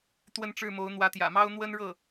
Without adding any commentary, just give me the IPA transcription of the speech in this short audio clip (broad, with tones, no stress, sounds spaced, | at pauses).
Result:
t̪ w ə˥˧ n ʈ͡ʂ ɻ̩˥˩ m o˧˥ ʊ̯ n̪ w ä˧˥ t̪ j ä̰˨˩ m ɑ˥ ʊ̯ n̪ w ə˥ n ɻ ɤ˥˩